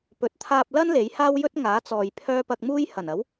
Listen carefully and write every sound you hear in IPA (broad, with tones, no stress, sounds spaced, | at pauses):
p ɵ˨˥ t̚ t̪ʰ aː˧ p̚ l ɐ˥ n l e˨˥ j h aː˥ w j ɵ˥ t̚ ŋ aː˨˥ t͡s ɔː˨ j pʰ œː˥ p ɐ˧ k̚ m uː˥ j h ɐ˨˩ n ɐ˨˥ w